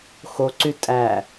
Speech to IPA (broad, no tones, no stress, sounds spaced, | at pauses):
x o ǀ y tʼ æ